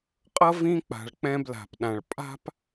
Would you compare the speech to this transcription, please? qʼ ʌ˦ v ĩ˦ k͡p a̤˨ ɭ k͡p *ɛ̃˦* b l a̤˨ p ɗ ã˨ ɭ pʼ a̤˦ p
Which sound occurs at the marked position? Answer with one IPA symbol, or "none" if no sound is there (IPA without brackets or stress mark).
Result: ɛ̃˦